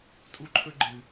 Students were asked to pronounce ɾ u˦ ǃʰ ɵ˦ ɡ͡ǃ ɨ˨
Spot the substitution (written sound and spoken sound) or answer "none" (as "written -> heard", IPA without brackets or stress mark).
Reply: ɾ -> tʼ